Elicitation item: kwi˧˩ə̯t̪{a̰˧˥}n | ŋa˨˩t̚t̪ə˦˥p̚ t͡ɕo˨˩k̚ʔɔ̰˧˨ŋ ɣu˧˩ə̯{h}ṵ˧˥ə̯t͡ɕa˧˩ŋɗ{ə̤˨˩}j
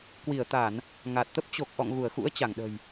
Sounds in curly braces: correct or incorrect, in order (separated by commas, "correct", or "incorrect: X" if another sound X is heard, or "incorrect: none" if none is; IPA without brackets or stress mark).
incorrect: a˧˩˨, incorrect: x, correct